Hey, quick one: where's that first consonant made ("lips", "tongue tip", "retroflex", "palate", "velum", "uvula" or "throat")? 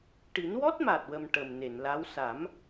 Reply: retroflex